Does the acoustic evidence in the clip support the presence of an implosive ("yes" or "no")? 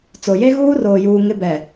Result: no